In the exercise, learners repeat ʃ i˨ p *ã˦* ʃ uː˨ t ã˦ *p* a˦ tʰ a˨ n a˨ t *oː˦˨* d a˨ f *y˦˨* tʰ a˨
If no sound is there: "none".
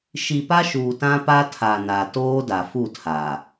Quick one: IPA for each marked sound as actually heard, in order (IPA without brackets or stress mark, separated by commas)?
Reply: a˦, p, oː˦, u˦˨